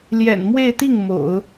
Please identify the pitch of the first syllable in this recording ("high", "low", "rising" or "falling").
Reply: low